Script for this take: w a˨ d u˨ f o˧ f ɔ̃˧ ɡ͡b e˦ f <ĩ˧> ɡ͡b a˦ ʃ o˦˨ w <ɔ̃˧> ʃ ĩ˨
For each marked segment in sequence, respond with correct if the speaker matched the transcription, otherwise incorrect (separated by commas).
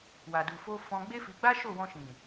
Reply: incorrect, correct